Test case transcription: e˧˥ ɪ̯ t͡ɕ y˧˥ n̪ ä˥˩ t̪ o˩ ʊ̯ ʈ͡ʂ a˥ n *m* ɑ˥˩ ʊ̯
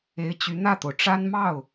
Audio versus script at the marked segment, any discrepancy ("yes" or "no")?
no